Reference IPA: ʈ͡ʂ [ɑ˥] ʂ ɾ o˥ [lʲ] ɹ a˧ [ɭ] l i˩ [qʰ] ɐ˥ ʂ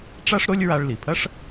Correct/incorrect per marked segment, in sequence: incorrect: a˥, correct, correct, incorrect: pʰ

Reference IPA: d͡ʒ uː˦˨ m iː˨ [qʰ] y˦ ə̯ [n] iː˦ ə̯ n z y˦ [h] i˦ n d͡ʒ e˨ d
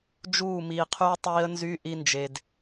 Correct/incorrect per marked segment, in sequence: correct, incorrect: tˤ, incorrect: ʔ

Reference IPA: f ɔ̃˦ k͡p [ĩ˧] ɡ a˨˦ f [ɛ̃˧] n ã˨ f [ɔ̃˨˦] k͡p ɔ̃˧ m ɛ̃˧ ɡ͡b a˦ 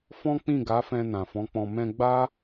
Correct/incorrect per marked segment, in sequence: incorrect: ĩ˦˨, correct, correct

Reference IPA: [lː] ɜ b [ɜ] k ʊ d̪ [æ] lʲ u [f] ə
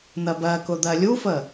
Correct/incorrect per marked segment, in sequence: incorrect: n̪, correct, incorrect: ɜ, correct

